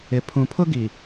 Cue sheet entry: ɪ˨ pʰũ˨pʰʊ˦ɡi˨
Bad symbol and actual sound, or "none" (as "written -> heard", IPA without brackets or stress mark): none